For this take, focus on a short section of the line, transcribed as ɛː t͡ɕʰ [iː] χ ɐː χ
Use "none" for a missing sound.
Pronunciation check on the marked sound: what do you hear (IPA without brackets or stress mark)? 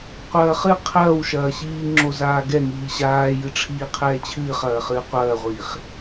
ɨː